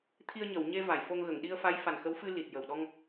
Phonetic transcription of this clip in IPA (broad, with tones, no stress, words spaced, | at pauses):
t̪ʰi˧ə̯ɲə˨˩˨wɲe˧ va˨˩˨jfo˧ŋ ɣə˨˩˨ŋɗi˧ə̯fa˧˥j fa˨˩nxə˧˥wfɨ˧ li˨˩t̚jə˨˩wɗɔ˧ŋ